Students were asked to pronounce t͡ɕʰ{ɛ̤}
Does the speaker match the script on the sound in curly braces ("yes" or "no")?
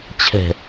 yes